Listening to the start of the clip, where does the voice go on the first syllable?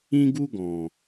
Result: high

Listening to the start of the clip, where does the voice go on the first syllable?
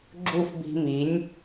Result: falling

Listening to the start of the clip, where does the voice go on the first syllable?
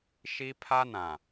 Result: high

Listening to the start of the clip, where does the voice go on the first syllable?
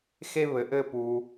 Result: high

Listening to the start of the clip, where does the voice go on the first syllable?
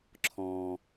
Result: low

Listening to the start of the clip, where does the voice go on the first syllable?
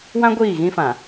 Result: high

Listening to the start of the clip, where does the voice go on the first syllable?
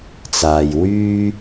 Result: low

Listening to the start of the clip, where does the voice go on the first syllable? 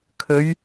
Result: rising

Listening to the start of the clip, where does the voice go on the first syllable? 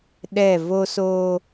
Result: falling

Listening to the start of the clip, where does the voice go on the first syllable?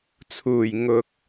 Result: low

